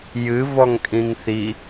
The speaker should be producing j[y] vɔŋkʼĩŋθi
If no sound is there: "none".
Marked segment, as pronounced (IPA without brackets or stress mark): ɨ